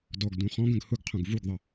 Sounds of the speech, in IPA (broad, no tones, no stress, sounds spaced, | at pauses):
d ɔ ɡ d ũ χ ɔ̃ ɡ ə̃ ɡ h ʊ ɡ qʰ ũ ɡ v u ɡ ðˤ ə